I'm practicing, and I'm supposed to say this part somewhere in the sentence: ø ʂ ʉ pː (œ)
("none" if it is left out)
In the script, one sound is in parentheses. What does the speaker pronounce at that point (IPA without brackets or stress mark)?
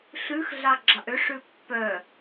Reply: œ